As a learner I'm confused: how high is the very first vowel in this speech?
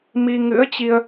high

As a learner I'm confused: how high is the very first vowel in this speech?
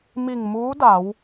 high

